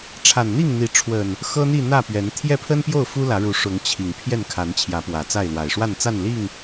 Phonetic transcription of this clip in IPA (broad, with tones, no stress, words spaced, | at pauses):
ʈ͡ʂʰa˨˩nn̪i˥˨ŋn̪i˨˦ʈ͡ʂʰwə˨˩n | xɤ˦n̪i˥˨ n̪ä˥˨pɥɛ˨˦n t̪ʰjɛ˥˨pʰə˦npjo˥˨ʊ̯ fu˦lä˨˦ɻu˨˦ ʂʊ˨˦ŋ t͡ɕʰi˨˩ŋ pʰjɛ˥˨nkʰa˨˦n t͡ɕʰjä˨˦pwä˨˩t͡sa˥˨ɪ̯lwa˨˩ɪ̯ ʂwa˥˨nt͡sa˥˨n li˥˨ŋ